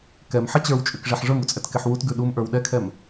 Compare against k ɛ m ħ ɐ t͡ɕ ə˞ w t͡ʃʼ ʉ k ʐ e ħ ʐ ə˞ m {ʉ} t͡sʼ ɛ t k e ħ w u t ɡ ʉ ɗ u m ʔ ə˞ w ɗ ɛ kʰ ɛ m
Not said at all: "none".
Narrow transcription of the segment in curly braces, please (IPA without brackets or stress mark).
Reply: u